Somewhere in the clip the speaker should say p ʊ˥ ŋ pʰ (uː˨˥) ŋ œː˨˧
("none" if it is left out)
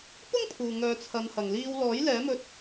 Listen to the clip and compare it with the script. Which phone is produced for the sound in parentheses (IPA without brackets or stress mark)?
uː˨